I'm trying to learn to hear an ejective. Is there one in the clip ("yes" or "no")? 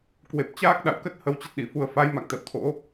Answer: no